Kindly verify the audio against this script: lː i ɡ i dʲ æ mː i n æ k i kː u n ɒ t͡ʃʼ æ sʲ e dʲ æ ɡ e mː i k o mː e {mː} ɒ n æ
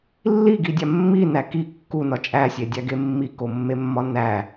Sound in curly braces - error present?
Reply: no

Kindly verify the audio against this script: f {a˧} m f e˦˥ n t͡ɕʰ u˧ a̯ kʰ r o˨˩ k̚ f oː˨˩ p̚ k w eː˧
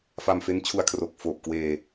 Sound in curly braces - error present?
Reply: no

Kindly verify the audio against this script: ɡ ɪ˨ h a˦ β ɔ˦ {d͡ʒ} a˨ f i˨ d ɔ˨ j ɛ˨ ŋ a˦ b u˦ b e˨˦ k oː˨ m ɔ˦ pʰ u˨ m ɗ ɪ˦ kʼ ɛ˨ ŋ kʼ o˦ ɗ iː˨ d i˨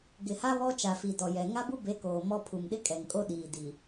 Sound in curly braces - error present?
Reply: yes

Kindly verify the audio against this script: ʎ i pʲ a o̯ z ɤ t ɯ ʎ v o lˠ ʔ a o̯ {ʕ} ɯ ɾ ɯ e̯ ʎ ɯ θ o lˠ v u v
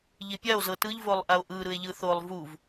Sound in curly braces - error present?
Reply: yes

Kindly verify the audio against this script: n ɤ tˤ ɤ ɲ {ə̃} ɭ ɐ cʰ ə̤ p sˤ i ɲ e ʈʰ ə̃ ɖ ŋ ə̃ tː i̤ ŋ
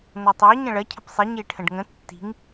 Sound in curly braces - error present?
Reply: no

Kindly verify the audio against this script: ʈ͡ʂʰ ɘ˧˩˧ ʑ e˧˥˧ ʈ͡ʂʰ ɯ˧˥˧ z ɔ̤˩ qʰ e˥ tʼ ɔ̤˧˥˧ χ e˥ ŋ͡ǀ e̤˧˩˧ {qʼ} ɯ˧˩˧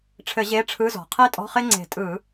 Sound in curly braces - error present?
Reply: yes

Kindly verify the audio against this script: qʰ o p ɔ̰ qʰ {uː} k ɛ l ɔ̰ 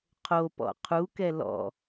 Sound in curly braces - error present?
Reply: yes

